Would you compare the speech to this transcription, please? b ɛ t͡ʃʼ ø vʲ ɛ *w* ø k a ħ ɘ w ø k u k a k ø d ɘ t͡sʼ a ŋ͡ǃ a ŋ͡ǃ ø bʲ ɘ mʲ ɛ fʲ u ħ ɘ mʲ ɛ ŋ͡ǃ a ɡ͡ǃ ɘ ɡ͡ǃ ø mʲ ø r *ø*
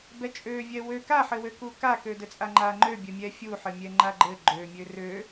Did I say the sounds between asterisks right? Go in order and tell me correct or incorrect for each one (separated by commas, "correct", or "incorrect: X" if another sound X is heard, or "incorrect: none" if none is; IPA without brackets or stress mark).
correct, correct